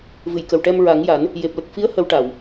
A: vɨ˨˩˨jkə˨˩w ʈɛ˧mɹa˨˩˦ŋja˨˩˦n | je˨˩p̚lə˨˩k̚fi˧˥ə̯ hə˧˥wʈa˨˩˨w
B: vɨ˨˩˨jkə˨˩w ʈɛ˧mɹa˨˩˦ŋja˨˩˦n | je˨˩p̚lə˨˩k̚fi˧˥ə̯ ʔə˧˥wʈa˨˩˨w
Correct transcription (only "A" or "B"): A